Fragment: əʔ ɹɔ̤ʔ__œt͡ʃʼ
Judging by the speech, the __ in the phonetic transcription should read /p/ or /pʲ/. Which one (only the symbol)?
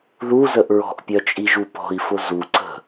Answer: pʲ